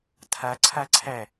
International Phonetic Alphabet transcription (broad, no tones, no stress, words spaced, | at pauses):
tʰa ǀʰaǀʰæ